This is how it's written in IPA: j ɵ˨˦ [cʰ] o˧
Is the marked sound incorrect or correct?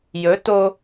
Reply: incorrect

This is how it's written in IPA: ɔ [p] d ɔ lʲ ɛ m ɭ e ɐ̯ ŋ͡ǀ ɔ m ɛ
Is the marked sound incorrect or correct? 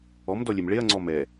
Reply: incorrect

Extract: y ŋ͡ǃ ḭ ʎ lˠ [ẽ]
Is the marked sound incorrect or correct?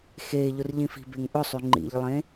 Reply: correct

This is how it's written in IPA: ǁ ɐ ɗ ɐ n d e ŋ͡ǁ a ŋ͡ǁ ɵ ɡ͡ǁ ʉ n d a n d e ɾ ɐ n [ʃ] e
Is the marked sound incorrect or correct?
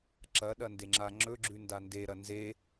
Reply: incorrect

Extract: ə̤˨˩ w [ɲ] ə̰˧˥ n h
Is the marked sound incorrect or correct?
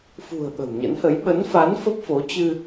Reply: correct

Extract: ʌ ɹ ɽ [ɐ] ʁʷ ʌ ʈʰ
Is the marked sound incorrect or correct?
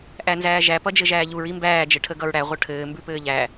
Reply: incorrect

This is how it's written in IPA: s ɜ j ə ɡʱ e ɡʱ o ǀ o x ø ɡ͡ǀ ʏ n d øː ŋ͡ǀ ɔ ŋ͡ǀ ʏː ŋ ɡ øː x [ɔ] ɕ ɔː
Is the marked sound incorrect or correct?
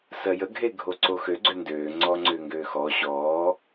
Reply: correct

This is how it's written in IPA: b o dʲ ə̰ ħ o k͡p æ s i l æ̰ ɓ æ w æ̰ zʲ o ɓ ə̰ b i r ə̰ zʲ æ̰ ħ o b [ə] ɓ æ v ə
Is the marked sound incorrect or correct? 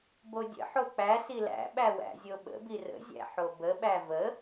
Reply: correct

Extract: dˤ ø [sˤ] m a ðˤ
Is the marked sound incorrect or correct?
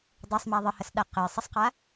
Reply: correct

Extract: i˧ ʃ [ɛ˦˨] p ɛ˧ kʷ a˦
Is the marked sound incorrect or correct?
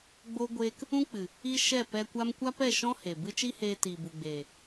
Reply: correct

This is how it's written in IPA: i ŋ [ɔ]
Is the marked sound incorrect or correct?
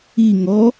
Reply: correct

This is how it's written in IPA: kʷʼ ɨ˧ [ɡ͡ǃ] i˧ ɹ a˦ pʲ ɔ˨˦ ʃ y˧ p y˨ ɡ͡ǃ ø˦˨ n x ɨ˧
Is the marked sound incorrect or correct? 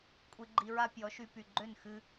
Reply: correct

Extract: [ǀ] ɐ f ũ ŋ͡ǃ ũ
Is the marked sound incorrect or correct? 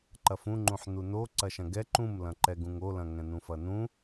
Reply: incorrect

